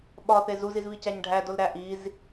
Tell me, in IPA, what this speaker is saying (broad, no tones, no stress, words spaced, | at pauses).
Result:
ɓɒθe zuzizβicæɲ ɖʱædolɾæ ʔiz